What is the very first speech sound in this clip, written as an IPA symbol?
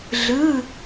ɮ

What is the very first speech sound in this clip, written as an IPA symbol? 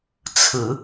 t͡sʰ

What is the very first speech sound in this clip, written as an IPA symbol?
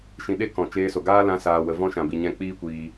ʃ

